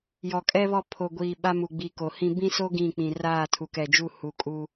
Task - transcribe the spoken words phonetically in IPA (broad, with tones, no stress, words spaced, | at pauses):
jɔ˨kʼɛ˦βɔ˦˨ pʰo˨ɡʷiː˨ ɓa˦mu˨ɡ͡bi˨ ko˨hĩ˦ bĩ˦so˦ ɡĩ˦˨k͡pĩ˨ raː˦˨tʰu˨kɛ˨d͡ʒu˦˨ hu˨kʼu˦